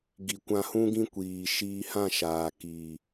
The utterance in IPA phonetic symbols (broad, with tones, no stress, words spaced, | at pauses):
ɡi˨ kʷã˧hũ˦ɡĩ˦ kʷiː˨ ʃiː˧hã˦˨ʃaː˨ kiː˨